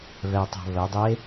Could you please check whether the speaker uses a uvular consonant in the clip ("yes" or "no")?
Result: no